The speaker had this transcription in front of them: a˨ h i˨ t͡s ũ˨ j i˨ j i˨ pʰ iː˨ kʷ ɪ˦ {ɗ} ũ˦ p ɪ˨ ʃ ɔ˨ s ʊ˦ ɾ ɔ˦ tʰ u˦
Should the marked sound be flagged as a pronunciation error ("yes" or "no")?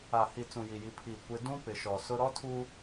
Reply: yes